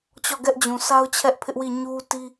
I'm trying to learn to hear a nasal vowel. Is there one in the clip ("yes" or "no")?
yes